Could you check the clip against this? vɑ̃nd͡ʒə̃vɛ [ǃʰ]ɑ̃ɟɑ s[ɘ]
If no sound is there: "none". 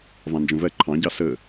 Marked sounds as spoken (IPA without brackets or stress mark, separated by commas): ǃʰ, ɘ